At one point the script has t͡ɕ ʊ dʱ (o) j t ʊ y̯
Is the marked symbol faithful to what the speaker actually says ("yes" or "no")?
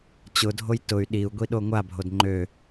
yes